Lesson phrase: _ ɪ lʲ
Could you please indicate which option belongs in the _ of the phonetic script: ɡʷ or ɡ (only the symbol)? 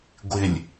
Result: ɡʷ